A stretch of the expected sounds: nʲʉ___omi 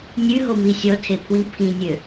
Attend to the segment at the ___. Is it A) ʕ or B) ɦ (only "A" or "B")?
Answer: B